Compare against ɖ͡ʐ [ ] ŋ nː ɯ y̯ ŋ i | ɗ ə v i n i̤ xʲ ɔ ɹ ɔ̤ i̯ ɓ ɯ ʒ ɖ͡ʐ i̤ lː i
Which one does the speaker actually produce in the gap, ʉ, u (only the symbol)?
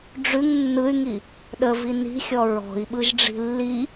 ʉ